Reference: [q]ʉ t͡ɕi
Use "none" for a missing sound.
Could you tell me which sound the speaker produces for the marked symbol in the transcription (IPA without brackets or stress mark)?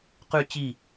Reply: q